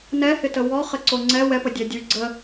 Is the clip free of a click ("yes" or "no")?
no